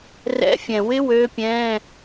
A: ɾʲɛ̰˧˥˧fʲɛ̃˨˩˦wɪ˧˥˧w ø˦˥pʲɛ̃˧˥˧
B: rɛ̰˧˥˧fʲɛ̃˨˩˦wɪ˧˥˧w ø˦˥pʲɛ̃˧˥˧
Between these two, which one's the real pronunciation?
B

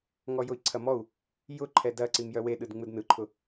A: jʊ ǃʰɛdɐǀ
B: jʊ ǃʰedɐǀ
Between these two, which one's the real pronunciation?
A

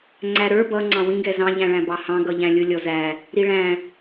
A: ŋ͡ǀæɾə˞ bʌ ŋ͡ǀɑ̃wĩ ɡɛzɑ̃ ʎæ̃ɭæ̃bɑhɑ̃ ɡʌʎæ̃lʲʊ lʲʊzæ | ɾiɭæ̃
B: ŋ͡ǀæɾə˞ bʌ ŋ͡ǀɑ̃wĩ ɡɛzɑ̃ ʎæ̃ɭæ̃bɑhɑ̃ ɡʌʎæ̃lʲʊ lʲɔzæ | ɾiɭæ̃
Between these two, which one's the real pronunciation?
B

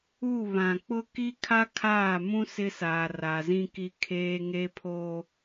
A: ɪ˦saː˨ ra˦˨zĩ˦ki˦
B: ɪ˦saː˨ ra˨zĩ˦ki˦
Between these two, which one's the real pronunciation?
B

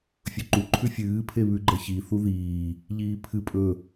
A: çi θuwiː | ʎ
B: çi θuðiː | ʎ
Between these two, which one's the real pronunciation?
B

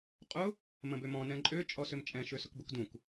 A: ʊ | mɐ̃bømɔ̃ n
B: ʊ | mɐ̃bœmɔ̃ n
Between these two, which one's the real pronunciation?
A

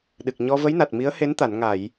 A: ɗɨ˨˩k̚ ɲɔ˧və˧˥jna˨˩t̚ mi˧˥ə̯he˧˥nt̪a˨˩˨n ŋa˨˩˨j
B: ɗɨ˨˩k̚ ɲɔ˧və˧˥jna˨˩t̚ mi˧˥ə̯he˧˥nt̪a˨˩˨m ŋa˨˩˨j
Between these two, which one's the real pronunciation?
A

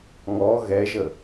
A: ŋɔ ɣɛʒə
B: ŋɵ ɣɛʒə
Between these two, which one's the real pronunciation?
A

